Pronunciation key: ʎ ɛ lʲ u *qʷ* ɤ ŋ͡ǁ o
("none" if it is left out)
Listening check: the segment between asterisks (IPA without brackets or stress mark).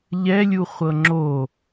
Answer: χʷ